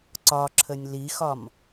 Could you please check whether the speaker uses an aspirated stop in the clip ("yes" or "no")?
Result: yes